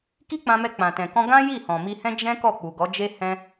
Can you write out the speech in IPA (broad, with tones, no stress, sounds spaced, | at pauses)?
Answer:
k i˦ k͡p ã˧ m ɛ˧ k͡p ã˨ t ɛ̃˨ k ɔ̃˧ ɡ ã˦ j i˦˨ h ɔ̃˨ m i˧ h ɛ̃˦ d͡ʒ ɛ̃˦ k ɔ˦˨ k͡p u˨ ɡ ɔ˨˦ d͡ʒ e˦ h ɛ̃˧